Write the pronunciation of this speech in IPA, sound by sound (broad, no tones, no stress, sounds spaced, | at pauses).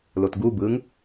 l o t ɡ u b ɯ ŋ